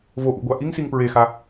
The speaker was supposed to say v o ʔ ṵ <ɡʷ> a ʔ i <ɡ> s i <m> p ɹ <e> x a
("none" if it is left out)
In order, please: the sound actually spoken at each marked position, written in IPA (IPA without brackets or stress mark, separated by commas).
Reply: ɡʷ, ŋ, ŋ, e